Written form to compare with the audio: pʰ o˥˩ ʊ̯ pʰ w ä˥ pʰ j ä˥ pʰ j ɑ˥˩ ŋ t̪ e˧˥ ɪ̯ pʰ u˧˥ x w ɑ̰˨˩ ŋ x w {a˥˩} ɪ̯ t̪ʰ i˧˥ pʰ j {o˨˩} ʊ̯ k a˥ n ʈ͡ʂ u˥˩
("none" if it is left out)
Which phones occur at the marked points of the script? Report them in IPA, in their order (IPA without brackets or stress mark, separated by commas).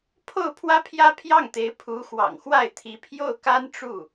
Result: a˥˩, o˥˩